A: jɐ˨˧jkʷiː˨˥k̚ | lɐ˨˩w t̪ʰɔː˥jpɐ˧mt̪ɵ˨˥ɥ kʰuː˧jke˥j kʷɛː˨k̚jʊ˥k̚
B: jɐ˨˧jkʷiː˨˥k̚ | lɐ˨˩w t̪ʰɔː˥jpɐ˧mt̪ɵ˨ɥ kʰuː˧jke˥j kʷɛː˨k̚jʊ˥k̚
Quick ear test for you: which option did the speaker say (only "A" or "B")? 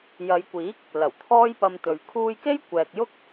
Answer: B